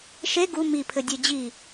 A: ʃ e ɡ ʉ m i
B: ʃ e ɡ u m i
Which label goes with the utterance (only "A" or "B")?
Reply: B